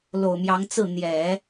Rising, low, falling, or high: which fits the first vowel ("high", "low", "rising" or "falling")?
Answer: low